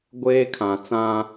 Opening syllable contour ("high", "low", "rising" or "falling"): high